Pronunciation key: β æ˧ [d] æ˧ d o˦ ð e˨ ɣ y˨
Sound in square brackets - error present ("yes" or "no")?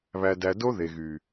no